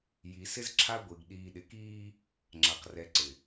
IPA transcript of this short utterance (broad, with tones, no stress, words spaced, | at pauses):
ji˨sɪ˦z ǁʰa˦ɡʷi˨ɡ ɗiː˨ɗɪ˨kiː˦ | ŋ͡ǁa˨qrɛ˨ǀɪ˨